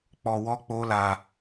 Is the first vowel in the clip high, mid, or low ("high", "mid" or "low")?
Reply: mid